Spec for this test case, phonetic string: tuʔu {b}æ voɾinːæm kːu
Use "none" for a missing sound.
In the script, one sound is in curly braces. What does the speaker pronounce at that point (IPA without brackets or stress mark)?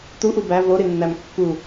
b